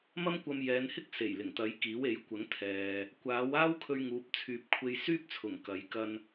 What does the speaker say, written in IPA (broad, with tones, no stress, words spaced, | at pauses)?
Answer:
mɐ˥mkʷɐ˧mjɛː˨˧nhɪ˥k̚ se˨˩jlɪ˨˩ŋt̪ɐ˨˥jkiː˨˥w e˨˥jkʷɐ˨˥ŋt̪ʰɛː˨ | kʷaː˨˥w aː˥wkʰɵ˧ɥŋuː˨˥p̚ t͡sʰyː˨p̚kʷʰe˧jsyː˥p̚t͡sʰʊ˨˩ŋ kɐ˨˥j kɐ˧n